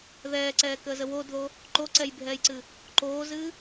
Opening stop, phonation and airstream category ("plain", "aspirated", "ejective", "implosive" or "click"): click